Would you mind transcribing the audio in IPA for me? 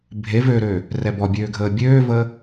bʱ e v ø ɾ øː | r ɛ b ɔ bʲ øː ɡʱ əː bʲ øː v əː

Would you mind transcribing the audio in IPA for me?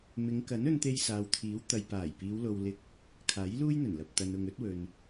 m ɪ˨˧ ŋ k ɐ˨˥ n ɵ˧ n t̪ e˧ j s aː˨ w t̪ʰ iː˨˥ w t̪ ɐ˨ j p aː˨˩ j p iː˨˧ w l o˧ w l ɪ˧ k̚ | kʰ aː˨˥ j l uː˥ j n̪ ɵ˨˩ n l ɐ˨ p̚ t̪ ɐ˨ n ʊ˨ ŋ ɵ˨˥ t̚ w ɵ˨ n

